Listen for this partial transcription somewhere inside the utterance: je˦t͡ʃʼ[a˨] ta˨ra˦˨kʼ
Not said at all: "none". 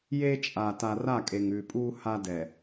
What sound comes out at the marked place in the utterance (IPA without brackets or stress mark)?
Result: a˨